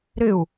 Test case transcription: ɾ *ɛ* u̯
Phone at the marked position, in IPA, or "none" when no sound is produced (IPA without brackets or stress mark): ɪ